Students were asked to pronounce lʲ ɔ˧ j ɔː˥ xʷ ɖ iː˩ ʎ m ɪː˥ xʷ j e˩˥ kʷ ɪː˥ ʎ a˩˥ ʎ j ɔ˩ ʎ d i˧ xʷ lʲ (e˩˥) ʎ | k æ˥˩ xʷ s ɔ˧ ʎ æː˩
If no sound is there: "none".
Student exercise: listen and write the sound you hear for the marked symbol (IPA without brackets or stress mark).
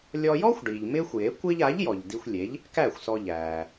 e˩˥